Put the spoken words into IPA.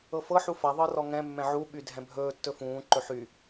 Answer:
ɤ f ɤ ħ u f a ðˤ ɤ r ɔ ŋ ɛ̃ mː ɛ̃ ʕ u ɓ y dʱ ɛ̃ bʱ ɵː tː ɵ f ũː ǃ ɵ ħ y

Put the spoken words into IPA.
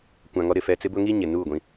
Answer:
kʷ ã˨ ŋ ɔ˦ ɾ ɪ˨ f ɛ˨ t͡s ɪ˦ b ʊ˦ ŋ i˦ ɲ ɪ˨ n uː˦˨ ɡʷ ĩ˦

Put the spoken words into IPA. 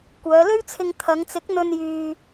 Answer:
kʷ œː˨˧ l ɵ˥ ɥ t͡sʰ ɪ˧ ŋ t̪ʰ ɐ˨˧ ŋ t͡s ɪ˨˥ k̚ n̪ ɵ˧ n j yː˧

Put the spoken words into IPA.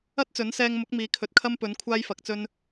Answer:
ɐ˥ t̚ t͡s ɵ˨˥ n s ɛː˧ ŋ m ʊ˨˥ k̚ m iː˨˥ kʰ ɵ˨ t̚ kʰ ɐ˥ m p ɵ˨˥ n kʷʰ aː˥ j f ɐ˨˥ k̚ t͡s ɵ˥ n

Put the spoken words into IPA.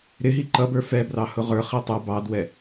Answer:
ɾ ɪ ɦ i ǃ ʌ b ə˞ f ɛ b r ɑ h ʊ ʁ ə˞ χ i tˤ ə b ɑ d w ɛ

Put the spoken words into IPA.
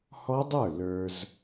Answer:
h ɔ˦˥ dˤ ə˞˥˩ l ə˞˨ z

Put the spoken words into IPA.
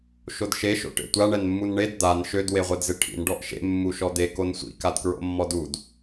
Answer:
ʃ o d ʃ e ʃ o̰ ʈ ḛ tʷ a ɳ ɛ n mː u n ɳ e d d̪ a n ʃ ø d w e ʁʷ ɛ d z ɪ ʈʰ ḭ n ɖ ɔ ʔ ʃ ḛ mː u ʃ ɔ d̪ e k o n sʷ ḭ k a d k ɹ o̰ mː ɔ d u d

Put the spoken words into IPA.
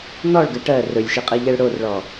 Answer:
n̪ ɔ ɭ ɡ ɘ ʈ ɜ r ɵ lʲ ʃ i qʼ i ʎ ɛ ɭ ɽ o r ɭ ɔ

